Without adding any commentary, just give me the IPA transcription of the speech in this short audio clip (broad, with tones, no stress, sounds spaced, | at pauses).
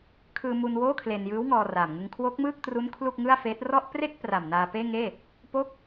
kʰ ɯː˧ m u˧ n w oː˥˩ kʰ l e˧ n j ɯː˦˥ w ŋ ɔː˧ r aː˨˩ m ŋ ɯ˧ ŋ kʰ w o˦˥ k̚ m ɯː˥˩ k̚ t r u˦˥ n kʰ l u˥˩ k̚ ŋ ɯ˥˩ a̯ f eː˦˥ t̚ r ɔ˥˩ ʔ p r e˥˩ k̚ p r a˨˩ m n aː˧ p eː˥˩ ŋ eː˥˩ | p o˥˩ k̚